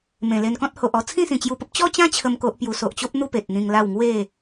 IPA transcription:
mẽ˨˩le˧nkɔ̃˦t̚ ho˨ʔɔ˧ t͡sʰĩ˥˧sĩ˨˩t͡ɕju˧pə˦p̚ t͡ɕɔ˦t͡ɕã˦ t͡ɕʰə˦mko˦ʔpju˧ so˨ʔt͡ɕo˦p̚n̪u˥˧ pe˨t̚n̪ĩ˧ŋla˥˧w ŋwe˥˧

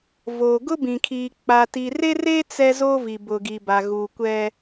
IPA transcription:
vo˨ ɡʊ˦bĩ˨kʰiː˨ k͡pa˨ti˨re˦re˦ t͡sɛ˦zo˦vi˨ bʊ˨ɡi˨ba˨ ɣu˨ kʷɛ˦

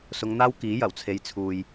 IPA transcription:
sʊ˨˧ŋn̪aː˥wkiː˨˥ jɐ˨˩wt͡sʰe˨˧j t͡sʰuː˨j

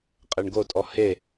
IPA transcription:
qʼeɳɡotʼɔ he

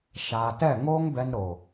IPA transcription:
ʃaː˨tɛ˦˨ ŋoː˦ŋbɛ˧nɾo˨

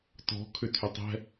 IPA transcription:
tɔ̤ kʰʏtʰʏtˤɛ̤

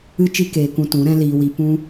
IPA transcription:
ɨ˧t͡ʃi˧ keː˧kũ˧ tũ˨˦ɾɛ̃˦liː˧wi˧ pũ˦

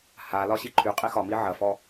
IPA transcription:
halɒɕi ǃʰyqʼi xɒmi ʕɐfɔ

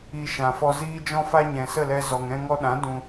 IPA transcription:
i˧ʃã˨ fɔ˧ziː˦d͡ʒɔ̃˦fa˦ ɲɛ̃˨sə˦˨lɛ˧ zɔ˨ŋɛ̃˧ŋɔ˧ɗã˨˦ dũ˧

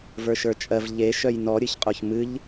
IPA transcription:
və˞ʃə˞t͡ʃʼɜv ʎe ʃœjnɔ ɾʲɨçqʼoçmɨʎ

